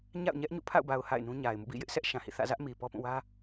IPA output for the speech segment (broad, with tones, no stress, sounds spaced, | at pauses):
ɲ a̰˦˨ ʊ̯ ɲ ɛ˦ ʔ ɲ ṵ˦˨ pʰ a̰˦˨ ʊ̯ b a˨ ʊ̯ h a̰˦˨ ɪ̯ n ũ˦ ɲ a˨ ɪ̯ m ṵ˦˨ b ḭ˦˨ j ɪ˦ ʔ sʰ ɛ˦ ʔ ʃ ã˨ h ḭ˦˨ θ ä̰˦˨ z ä˦ ʔ m i˨ p ɔ˦ p ũ˦˨ w ä˦